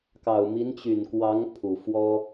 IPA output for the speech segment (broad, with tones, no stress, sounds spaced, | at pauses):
k ɑ˨˩ ʊ̯ m i˧˥ n t͡ɕ y˨˩ n k w ɑ˧˥ ŋ pʰ u˨˩ f w ɔ˥